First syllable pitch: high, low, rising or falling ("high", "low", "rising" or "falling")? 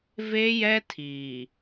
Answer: high